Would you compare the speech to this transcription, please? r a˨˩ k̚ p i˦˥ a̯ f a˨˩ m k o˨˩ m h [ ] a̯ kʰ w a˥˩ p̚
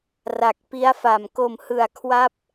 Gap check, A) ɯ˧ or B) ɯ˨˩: B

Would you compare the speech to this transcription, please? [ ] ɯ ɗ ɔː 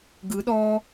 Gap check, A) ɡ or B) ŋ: A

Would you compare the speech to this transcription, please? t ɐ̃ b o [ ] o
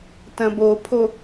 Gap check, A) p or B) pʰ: B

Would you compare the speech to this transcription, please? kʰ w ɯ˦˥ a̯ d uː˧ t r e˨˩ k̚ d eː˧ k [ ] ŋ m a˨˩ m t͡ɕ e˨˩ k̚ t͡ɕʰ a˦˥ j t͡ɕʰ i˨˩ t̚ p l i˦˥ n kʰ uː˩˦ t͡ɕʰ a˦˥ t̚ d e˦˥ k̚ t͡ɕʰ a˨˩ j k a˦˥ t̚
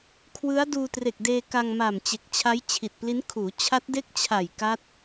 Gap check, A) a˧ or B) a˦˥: A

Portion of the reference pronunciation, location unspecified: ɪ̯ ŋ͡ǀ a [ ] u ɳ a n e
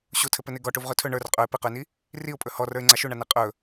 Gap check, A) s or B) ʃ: B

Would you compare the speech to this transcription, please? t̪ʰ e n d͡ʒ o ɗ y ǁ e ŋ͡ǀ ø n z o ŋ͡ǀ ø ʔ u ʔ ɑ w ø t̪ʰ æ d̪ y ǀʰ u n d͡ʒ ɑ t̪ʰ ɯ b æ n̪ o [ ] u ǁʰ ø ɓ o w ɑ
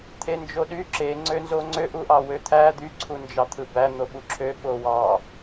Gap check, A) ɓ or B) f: A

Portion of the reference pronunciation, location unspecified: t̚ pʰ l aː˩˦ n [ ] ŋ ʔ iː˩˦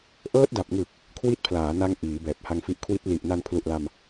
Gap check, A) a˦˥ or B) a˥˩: A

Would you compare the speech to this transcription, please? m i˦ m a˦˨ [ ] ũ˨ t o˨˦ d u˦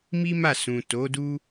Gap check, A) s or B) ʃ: A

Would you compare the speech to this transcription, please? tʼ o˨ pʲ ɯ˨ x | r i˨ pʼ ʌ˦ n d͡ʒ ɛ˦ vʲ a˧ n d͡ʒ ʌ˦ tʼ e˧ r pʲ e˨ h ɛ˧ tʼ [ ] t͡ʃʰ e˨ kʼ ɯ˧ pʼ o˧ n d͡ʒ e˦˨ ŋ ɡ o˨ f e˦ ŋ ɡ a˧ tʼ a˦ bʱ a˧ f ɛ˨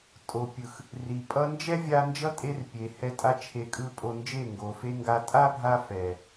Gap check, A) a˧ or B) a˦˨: A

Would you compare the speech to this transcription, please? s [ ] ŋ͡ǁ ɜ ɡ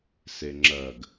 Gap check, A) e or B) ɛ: A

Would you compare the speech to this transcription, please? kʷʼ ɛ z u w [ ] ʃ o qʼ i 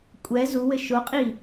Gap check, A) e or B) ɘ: B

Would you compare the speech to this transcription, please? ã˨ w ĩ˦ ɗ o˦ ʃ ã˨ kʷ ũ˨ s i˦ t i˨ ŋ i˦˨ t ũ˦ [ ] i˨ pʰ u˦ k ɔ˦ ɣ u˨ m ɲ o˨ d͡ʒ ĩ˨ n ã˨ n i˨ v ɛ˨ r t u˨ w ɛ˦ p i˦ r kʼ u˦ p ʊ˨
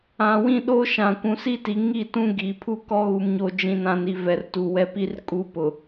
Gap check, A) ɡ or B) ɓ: A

